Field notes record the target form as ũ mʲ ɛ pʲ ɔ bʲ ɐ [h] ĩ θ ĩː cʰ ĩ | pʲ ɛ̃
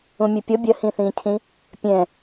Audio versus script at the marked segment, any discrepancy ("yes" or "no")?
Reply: no